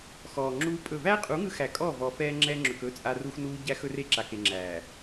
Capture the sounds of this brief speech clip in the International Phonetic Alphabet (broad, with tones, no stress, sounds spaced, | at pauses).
x ɔː˨ ŋ͡ǁ uː˦ pʼ ɵ˦˨ v æː˦ qʼ u˨˦ ŋ ɯ˦ x æ˨ kʼ ɔː˦˨ v ɔː˨ f ɛː˦ ŋ͡ǁ ɛː˦ ŋ͡ǁ ɵ˨ k ɵ˦ t͡sʼ a˦ r u˦ x n uː˦ ɟ æ˦ x ɵ˦ r e˦ ǁ a˨ k e˨ ŋ͡ǁ æː˨